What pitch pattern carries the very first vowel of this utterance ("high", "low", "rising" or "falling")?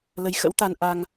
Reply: rising